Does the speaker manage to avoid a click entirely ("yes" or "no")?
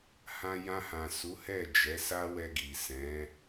yes